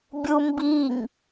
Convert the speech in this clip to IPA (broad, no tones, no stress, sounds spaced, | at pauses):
bʲ u m b i ŋ